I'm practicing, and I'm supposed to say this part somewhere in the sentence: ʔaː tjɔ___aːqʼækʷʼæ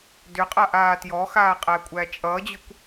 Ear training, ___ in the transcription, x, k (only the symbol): x